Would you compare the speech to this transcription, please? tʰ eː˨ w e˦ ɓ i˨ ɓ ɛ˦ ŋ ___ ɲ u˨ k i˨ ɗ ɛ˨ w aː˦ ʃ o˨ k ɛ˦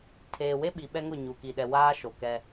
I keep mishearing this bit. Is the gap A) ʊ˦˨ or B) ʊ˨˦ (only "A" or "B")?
A